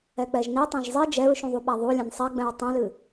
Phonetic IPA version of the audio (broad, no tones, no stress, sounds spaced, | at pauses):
ɛ k͡p ɛ ʒ n i tˤ ẽ ʒ zˤ i d͡ʒ ɛ ɹ ʃ ũ ðˤ u ɓ a ðˤ u lʲ ɛ̃ n sˤ ɛ ɡ͡b ɛ̃ ɹ tˤ ɛ̃ l ɨ